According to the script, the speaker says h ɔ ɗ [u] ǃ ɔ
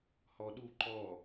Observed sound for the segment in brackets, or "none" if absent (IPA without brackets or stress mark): u